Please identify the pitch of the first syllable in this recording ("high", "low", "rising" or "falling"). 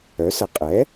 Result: rising